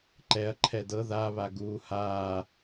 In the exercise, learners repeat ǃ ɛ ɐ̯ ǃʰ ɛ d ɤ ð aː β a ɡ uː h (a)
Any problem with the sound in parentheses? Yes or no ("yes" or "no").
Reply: yes